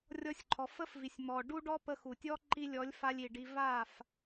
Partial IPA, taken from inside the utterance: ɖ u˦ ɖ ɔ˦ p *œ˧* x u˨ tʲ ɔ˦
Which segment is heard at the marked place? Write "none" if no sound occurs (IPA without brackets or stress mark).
ə˧